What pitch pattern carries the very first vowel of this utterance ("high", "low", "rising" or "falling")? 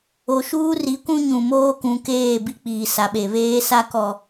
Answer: low